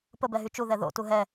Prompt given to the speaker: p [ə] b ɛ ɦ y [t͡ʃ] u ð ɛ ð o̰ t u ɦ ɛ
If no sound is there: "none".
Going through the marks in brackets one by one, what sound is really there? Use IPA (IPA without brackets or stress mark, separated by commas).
ə, t͡ʃ